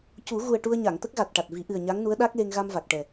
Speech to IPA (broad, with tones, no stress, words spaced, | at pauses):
cu˨˩˦ ɣu˨˩ə̯ ʈu˧ə̯ɲa˨˩˨ŋ t̪ə˦˥k̚ɣa˨˩t̚ ʈa˨˩t̚vi˨˩˦ ʔɨ˨˩ə̯ ɲa˧˥ŋnu˧˥ə̯ ɗa˦˥k̚le˧ŋ ɣa˧m va˨˩k̚ʈɛ˨˩